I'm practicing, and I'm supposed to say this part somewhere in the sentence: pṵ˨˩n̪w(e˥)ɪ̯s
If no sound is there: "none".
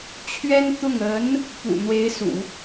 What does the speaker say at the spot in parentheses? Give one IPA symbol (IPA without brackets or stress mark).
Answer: e˧˥